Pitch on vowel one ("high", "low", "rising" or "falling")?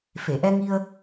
low